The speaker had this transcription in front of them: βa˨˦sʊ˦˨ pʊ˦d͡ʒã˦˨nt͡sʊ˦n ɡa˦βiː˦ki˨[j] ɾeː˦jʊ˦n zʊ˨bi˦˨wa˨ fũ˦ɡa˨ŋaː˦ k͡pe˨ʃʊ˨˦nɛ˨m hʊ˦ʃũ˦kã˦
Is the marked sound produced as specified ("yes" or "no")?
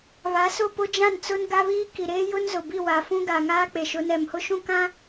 no